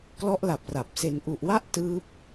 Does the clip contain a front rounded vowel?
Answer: no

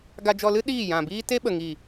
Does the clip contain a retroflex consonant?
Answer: no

